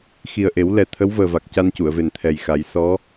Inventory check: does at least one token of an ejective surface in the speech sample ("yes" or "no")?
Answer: no